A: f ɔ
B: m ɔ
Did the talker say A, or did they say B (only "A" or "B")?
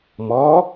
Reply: B